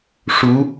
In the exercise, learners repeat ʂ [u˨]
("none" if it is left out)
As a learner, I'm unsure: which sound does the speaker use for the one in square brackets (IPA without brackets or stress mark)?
u˧˥